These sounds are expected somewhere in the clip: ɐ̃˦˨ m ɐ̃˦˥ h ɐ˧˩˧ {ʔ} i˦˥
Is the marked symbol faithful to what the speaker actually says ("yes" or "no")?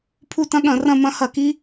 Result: no